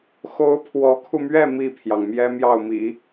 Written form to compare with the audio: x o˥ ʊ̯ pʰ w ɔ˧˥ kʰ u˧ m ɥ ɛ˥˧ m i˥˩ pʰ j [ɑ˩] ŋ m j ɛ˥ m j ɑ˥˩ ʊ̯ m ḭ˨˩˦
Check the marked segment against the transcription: correct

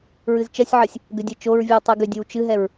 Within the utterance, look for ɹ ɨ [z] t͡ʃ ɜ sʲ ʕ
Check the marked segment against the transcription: correct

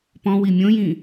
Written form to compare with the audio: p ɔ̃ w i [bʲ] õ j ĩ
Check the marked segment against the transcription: incorrect: mʲ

